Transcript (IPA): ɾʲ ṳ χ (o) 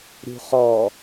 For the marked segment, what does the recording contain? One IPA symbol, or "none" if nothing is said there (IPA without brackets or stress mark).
ɔ